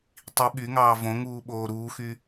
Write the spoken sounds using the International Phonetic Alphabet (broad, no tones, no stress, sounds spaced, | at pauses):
tˤ i ɓ y ŋ ɑː v õ ŋ uː ɓ oː ɾ uː x y